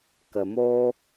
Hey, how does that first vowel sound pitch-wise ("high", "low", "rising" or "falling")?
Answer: low